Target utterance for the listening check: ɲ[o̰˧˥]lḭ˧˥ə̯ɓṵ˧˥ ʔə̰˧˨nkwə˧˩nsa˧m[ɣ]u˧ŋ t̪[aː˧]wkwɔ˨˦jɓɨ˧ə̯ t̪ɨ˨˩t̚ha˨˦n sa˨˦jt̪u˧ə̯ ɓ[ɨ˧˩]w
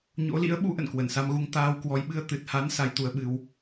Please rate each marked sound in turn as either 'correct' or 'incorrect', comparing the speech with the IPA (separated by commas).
correct, correct, correct, incorrect